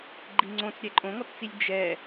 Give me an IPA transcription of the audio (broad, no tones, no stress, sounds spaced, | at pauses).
ɡ͡ǃ i ŋ͡ǀ õ t͡s ɾʲ ɛ ǃʼ õ ŋ ɔ t t͡s i lʲ d͡ʒ ɛ